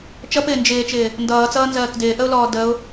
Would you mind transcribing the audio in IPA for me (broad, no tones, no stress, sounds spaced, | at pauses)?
t͡ʃ ʌ p ɪː n d͡ʒ ɪː t͡ʃ ɪː | n d ʌː t͡s ʌː n z ɜː k d ɪː ʔ ə ʊ̯ l ɔː d ə ʊ̯